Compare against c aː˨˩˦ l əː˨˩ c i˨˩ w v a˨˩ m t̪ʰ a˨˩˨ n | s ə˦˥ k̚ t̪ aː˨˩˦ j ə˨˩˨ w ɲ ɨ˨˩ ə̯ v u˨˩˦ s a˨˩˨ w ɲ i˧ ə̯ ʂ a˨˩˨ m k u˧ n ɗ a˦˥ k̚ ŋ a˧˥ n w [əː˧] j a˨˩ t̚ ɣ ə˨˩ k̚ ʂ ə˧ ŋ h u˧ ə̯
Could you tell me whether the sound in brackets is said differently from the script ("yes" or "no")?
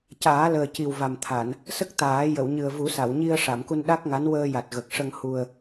no